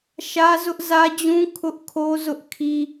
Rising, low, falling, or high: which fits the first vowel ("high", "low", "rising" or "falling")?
high